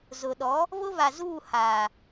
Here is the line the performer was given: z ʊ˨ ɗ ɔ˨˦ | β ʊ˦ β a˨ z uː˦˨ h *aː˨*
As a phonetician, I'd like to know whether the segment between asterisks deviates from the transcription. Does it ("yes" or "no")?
no